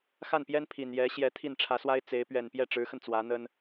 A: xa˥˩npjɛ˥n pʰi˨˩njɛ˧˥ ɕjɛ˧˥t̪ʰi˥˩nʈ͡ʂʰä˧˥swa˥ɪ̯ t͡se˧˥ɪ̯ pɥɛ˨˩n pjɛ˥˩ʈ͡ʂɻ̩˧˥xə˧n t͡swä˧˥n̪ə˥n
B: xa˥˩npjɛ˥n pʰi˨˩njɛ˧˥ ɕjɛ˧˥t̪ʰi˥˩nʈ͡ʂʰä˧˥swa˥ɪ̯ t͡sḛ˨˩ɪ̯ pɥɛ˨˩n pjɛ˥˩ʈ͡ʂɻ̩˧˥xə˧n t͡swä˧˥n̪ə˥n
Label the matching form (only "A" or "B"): A